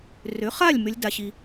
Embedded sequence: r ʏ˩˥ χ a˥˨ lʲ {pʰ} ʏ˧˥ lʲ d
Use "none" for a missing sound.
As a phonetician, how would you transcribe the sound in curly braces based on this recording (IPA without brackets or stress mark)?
m